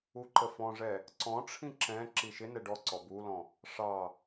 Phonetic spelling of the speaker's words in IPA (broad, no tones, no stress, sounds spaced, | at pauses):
u ǃ ə f ɔ̃ ʐ ɛ | ǀ ɔ̃ ʈ͡ʂʰ ĩ ǁ ɛ̃ ǁ i ʃ ɪ n ɛ ɖ ɔ ǀ ɔ b u l ɔ̃ | ʂ ɑ